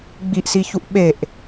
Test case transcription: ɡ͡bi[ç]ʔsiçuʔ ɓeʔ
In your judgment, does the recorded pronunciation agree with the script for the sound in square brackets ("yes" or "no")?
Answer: no